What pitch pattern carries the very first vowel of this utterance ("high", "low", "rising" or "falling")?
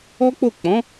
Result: high